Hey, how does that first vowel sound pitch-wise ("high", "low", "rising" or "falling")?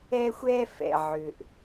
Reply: high